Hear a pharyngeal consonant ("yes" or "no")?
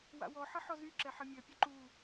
yes